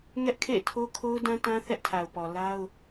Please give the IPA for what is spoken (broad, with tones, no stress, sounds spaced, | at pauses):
ŋ ɛ˦ ʔ kʰ ḛ˦˨ ɪ̯ tʰ o˦ kʰ o˦ ʊ̯ d ã˦ t ã˦ θ ɛ˦ ʔ tʰ a˨ ʊ̯ p ɔ˨ l a˦ ʊ̯